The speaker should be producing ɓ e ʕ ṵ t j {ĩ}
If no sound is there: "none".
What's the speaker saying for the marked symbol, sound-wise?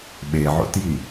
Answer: i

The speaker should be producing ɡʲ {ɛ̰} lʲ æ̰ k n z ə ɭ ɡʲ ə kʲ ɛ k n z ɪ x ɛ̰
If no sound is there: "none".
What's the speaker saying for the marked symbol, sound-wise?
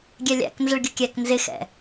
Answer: ɛ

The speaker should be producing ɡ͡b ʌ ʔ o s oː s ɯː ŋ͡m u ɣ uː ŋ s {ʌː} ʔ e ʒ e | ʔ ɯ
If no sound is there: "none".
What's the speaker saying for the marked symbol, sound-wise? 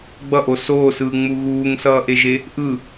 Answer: ʌː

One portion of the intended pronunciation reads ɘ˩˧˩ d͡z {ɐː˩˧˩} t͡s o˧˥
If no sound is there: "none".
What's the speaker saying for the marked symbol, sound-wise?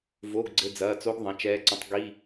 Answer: ɐː˩˧˩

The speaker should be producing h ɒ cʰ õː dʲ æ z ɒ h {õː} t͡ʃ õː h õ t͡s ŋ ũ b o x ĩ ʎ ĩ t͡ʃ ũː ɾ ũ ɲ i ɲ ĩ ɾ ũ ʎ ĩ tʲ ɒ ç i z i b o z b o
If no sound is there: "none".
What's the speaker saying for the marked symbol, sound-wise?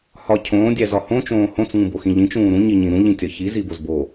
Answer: õ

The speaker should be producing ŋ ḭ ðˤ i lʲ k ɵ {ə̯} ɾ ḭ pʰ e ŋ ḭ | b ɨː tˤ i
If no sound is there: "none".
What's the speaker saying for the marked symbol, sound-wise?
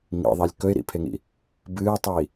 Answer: ɪ̯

